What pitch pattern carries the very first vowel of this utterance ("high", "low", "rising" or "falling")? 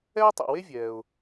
high